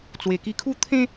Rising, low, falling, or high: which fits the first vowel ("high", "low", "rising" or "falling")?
low